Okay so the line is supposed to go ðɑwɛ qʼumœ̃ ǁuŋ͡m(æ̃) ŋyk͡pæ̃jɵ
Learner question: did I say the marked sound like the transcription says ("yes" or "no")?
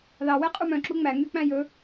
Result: no